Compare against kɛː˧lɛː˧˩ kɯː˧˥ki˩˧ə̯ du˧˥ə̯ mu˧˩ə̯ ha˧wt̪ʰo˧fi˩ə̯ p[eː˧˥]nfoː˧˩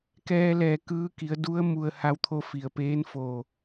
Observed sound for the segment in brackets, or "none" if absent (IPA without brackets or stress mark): eː˧˥